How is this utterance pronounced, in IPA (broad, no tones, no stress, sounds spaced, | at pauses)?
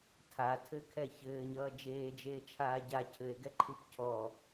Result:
tʰ a tʰ ɘ kʰ ɛ ç ɘː ɲ ʌː d͡ʒ eː d͡ʒ eː t͡ʃʰ aː ɟ a cʰ ɘ e̯ ɡ ɛ ǃʰ ɨ p cʰ ɔ